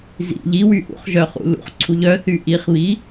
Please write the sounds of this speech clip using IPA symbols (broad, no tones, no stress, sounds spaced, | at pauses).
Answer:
z ḭ ʎ i w y ʔ ṵ χ ʒ œ χ ṵ l ṵ χ ǀʰ u ʎ œ θ y ʔ i χ β i